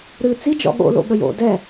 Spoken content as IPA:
ɾ ɨ t͡s i d͡ʒ ɔ̰ ɠ o̰ l o̰ ɠ ə j o̰ d ɛ

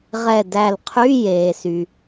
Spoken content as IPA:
ʁ ɛ˧˩ d æ˧˩ l qʰ y˧˥˧ j eː˩ s y˩

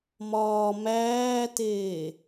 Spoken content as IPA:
m ɒː m æː t eː

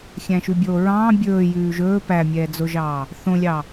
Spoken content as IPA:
xʲ æ̃ ʃ ʉ bʲ oː ɹ ɑ̃ː bʲ ɵː j ʉː ʒ ɵː p æ mʲ ɛː d͡z o ʒ ɑː | θ õ lʲ ɑ

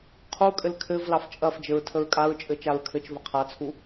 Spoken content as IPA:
qʰ u kʼ ɘ l kʰ ɘ v l ɑ f t͡ʃʼ ɐ f d͡ʒ ɘ ɹ tʰ ə ɹ kʼ a ɹ t͡ʃʼ ɘ t͡ʃ a ɹ kʰ ɘ t͡ʃ v ɐ qʰ a t͡sʰ u

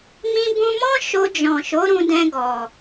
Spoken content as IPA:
m ĩ˧ b ũ˧ m ɔ̃˦ ʃ o˧ d͡ʒ ɔ̃˨ ʃ o˨˦ ɾ ũ˧ d ɛ̃˧ ɡ ɔ˨

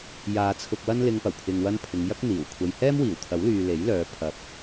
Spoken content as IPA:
j aː˨ t͡sʰ ʊ˨ k̚ w ɐ˥ n l ɪ˧ ŋ p ɐ˨˩ w pʰ ɪ˨ ŋ w ɐ˧ n pʰ ɪ˨˧ ŋ j ɐ˥ k̚ n̪ iː˨˩ w kʷʰ ɐ˨ j h ɛː˥ m w iː˨˩ w t̪ʰ ɐ˨˥ w l yː˨ l e˨˥ j l œː˨˧ pʰ ɐ˨ p̚

